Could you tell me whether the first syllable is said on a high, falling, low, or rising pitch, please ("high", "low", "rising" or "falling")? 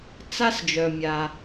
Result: high